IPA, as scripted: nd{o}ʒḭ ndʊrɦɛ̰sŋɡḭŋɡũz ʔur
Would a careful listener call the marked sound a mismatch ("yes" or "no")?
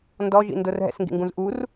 yes